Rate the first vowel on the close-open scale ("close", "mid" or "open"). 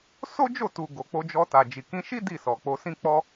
mid